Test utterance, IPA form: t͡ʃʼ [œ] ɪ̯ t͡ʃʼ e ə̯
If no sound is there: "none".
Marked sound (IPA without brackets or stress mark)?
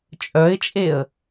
œ